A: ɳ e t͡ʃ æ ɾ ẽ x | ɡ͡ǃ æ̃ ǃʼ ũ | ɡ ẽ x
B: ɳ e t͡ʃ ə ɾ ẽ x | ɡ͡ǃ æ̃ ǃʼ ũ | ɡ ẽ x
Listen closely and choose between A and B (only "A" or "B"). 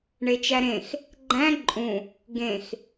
A